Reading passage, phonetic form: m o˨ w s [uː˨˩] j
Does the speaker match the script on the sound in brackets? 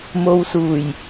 yes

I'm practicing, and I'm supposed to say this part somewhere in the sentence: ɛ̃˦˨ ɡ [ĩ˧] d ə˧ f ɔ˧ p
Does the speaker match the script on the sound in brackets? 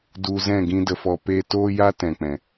no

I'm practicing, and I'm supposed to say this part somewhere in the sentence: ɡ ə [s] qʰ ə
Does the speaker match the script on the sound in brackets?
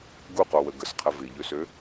yes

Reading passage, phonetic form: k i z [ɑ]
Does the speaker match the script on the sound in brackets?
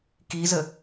no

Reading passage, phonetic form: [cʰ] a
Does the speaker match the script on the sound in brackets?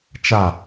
no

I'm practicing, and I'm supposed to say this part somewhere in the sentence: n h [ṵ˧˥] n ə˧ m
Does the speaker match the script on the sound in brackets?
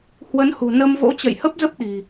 no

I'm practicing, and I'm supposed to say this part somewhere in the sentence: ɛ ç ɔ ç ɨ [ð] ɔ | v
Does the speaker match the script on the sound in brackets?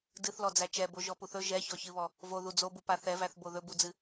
no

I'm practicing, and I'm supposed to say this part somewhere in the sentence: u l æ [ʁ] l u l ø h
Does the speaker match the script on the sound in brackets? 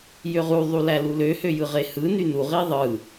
no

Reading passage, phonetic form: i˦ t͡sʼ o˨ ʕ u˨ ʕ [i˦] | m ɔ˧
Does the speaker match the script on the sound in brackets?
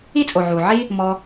yes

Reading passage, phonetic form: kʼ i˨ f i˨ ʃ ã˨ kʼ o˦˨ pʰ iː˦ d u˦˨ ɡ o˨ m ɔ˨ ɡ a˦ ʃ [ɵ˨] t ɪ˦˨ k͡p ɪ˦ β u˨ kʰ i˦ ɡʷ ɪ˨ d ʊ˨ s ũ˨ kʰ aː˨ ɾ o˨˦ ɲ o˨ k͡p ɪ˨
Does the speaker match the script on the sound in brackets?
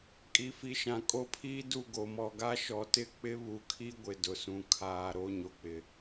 no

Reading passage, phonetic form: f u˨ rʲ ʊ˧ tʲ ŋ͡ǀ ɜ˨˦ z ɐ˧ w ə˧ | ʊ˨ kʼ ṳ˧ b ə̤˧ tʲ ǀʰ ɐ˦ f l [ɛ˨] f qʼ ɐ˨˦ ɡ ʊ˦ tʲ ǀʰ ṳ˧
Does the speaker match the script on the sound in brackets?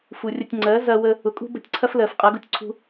no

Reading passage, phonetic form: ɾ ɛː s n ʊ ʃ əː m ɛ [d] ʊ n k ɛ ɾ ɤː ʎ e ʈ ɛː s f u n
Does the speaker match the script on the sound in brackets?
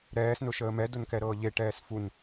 yes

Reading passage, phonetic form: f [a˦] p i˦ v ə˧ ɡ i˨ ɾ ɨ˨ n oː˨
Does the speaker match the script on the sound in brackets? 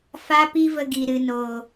yes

